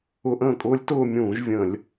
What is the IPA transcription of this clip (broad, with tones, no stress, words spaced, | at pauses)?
ʊ˧˥˧ʔə̃ː˥˩kʼʊː˦˥lʲ tʊː˥˧mʲũː˧˩˧ʒ vʲə̃˧˩˧lʲ